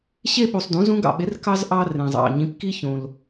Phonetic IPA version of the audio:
ɕ e˥ ɓ u˨ sˤ d ũ˨˥ z ũ˥ ɡ ɑ̰˨ ɓ e˨˥ r k ɑ˥ z ʔ ɑ˥ r ẽ˨ zˤ ɑ̰˨ ɲ ĩ˨˥ p k i˥ ç õ˨ l

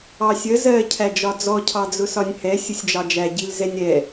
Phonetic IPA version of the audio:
ɑ sʲ ə z ɜ cʰ æ d͡ʒ ɒ d͡z ɔ cʰ ɑ d͡z ʊ s ɒ nʲ h ɛ sʲ ʊ sʲ d͡ʒ ɑ d͡ʒ æ ɟ i l z ɛ nʲ ɾ ɛ

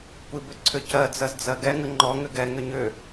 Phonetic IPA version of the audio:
kʷ i b ʏ ǀʰ ʏ c ɜ d͡z ɜ z d͡z ɜ ɡ ɛ ŋ ə ŋ͡ǃ ɔ ŋ ʏ ɡ ɛ ŋ ʏ ɲ ʏ

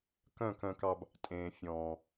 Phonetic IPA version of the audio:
k œ̃˦˨ k œ̃˧ k ɑ˧ b | tʼ ẽː˨ fʲ ɔ̃ː˨

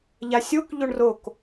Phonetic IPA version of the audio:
ʎ a sʲ o k ʎ o ɳ r o k

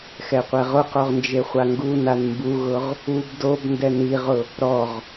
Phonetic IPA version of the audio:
x ɛ qʷ ɛ ʁ ʊ q o ʁ n d͡ʒ e χʷ a ŋ ɡ u n a n m b u ɣ ʊ ʁ | u b d o b n d ɛ n i ʁ ʊ | ɾ ɔ ʁ

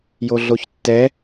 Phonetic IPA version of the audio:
j o ɮ o ç tː ɛ

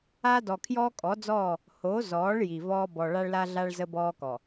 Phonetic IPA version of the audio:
a˦ d ɔ˨ kʰ j ɔː˦ kʼ ɔ˨˦ d͡z ɔː˦˨ | h o˨˦ z ɔː˨˦ ɭ j i˨ v ɔː˦ b ɔ˨ ɭ a˦ ɭ l a˦ ɮ a˦ ɭ z ə˦ b ɔː˦ k ɔ˨

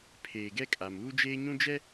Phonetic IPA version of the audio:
pʰ eː˨ ɡ ɛ˦ kʼ a˨ m uː˦ d͡ʒ eː˦ ɲ ũ˦ d͡ʒ ɛ˦

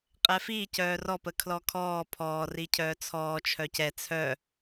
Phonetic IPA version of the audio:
qʼ ɛ f i c œː r ɔ p ə kʰ l ɔ kʰ ɔː pʰ ɔː r i cʰ œː t͡sʰ ɔː t͡ʃʰ œ c ɛ t͡sʰ œ

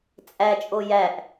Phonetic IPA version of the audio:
t͡sʼ æ t͡ʃʼ o j æ ʔ

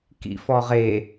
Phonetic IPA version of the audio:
k ḭ f ɔ ʁ e

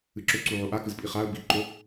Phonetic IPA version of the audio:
ɨ ǁ ɵ ǀ u ʕ o ʔ a k ɨ z pʼ i χ a ə̯ b i ǃ o

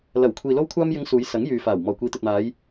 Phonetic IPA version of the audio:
l ɐ˨˩ w kʷʰ iː˨ l o˧ w kʷʰ aː˧ m j ɪ˨˧ ŋ s uː˨˧ j s ɐ˨˥ ŋ j yː˨ f aː˨˩ w m ɔː˨˩ kʷ iː˨˧ t̪ ɵ˨ t̚ m aː˨˧ j

